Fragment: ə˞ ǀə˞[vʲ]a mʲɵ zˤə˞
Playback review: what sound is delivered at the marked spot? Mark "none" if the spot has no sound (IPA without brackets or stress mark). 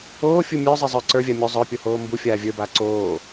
vʲ